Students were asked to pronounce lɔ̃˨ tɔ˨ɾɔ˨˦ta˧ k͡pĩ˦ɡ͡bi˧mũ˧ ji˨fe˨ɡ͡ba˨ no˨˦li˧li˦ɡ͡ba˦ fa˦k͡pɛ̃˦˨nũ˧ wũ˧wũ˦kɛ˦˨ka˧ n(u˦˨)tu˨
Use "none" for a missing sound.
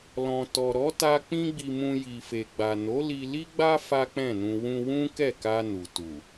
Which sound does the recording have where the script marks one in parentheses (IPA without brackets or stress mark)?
u˨